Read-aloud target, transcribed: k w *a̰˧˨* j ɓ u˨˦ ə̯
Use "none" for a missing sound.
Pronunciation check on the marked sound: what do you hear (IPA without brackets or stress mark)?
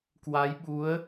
a˨˦